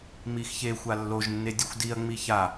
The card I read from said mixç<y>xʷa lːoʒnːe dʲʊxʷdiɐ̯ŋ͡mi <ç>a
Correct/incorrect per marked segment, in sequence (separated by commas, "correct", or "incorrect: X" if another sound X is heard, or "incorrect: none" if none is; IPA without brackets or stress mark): incorrect: e, correct